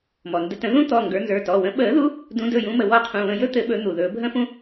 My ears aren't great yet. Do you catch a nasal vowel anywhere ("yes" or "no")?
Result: yes